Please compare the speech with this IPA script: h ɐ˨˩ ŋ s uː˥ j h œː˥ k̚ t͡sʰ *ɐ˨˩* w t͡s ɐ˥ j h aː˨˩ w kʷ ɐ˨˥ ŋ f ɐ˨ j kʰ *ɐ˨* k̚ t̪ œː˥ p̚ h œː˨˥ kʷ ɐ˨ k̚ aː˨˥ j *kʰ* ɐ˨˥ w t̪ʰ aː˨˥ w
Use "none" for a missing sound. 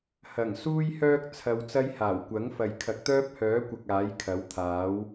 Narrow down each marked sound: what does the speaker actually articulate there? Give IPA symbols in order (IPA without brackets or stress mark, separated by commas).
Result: ɐ˧, ɐ˨˥, kʰ